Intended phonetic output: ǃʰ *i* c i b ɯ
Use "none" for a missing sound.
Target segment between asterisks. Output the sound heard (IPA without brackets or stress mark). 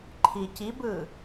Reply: i